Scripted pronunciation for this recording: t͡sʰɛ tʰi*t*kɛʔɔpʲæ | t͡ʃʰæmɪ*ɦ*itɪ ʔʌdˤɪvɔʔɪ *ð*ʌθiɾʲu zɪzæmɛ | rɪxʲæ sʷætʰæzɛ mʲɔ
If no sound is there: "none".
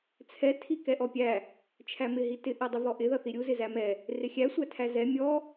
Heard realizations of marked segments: none, ɦ, ð

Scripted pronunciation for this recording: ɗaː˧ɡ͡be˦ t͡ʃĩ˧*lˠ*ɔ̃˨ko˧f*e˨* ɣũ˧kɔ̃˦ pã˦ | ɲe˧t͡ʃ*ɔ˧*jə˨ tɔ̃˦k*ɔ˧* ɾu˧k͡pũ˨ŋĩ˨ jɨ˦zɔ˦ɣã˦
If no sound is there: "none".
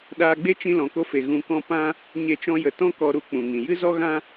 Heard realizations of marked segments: l, e˨, ɔ̃˧, ɔ˧

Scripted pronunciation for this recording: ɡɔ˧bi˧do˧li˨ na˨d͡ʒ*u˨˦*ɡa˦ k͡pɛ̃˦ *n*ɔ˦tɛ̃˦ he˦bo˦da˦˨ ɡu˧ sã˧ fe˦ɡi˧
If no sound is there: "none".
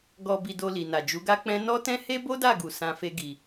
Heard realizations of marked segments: u˨˦, n

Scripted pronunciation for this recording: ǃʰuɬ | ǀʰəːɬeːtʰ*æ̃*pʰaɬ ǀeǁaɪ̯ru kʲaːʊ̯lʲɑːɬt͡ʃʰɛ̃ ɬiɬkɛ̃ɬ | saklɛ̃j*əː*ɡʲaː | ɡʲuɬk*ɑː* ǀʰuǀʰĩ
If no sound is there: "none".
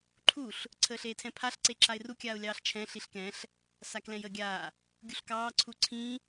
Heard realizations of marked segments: ɛ̃, əː, ɑː

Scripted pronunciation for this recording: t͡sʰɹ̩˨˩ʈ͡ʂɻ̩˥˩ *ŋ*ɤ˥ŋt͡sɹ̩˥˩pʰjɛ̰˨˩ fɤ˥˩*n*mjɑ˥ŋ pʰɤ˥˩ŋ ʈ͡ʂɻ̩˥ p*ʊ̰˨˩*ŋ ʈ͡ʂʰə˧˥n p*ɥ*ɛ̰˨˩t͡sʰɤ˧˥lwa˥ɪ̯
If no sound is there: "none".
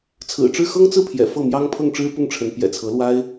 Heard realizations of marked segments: x, none, ʊ˥˩, j

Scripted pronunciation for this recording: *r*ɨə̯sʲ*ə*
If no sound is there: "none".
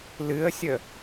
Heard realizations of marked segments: l, ə

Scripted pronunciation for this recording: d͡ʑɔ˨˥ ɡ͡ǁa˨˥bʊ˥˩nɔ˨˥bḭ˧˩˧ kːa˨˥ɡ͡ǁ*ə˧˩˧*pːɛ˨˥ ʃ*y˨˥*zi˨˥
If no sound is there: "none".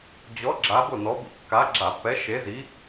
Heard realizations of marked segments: a˧˩˧, e˨˥

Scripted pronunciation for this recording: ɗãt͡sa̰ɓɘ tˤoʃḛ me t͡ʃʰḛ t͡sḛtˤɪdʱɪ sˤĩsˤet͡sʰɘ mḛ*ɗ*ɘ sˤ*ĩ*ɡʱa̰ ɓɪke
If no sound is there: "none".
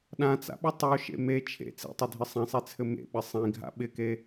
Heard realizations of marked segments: ɓ, ĩ

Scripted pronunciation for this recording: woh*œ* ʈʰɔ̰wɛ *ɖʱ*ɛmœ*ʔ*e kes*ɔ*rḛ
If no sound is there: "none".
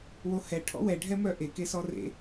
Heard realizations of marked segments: ɛ, ɖʱ, ʔ, ɔ

